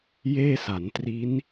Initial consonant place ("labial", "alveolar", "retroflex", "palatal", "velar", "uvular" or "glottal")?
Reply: palatal